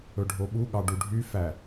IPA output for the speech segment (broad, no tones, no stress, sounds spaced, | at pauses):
ɵ ɖʱ o ɓ u ɠ ɑ ɖ u ɖʱ y f æ